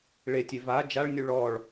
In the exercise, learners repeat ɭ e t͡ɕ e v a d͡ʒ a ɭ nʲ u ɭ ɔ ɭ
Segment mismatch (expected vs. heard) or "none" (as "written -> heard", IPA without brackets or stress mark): t͡ɕ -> tʲ